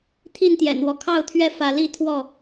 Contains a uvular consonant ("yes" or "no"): no